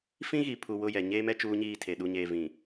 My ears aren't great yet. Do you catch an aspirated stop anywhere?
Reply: yes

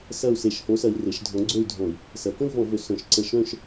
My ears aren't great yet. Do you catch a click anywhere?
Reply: yes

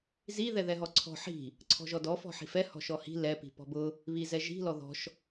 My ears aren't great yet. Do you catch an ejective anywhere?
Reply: no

